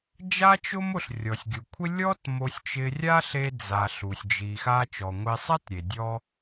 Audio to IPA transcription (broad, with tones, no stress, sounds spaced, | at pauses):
d͡ʒ a˥ t͡ʃ ʊ˥ m ʊ˧ ɬ rʲ ɔ˩ sʲ ɡʲ u˩ kʷʰ ɪ˥ lʲ ɔ˥ t m o˧ sʲ t͡ʃ ɪ˧ rʲ a˥ ɬ e˧ d͡z a˩ ɬ u˩ sʲ d͡ʒ i˩ x a˧ t͡ʃ ɔ˩ ŋʷ e˧ sˤ a˥ t ɾʲ e˩ dʲ ɔ˧